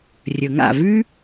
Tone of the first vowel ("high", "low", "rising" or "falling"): low